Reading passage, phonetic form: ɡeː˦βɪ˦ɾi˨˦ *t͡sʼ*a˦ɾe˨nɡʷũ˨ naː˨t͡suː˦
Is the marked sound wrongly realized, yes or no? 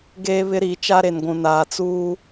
yes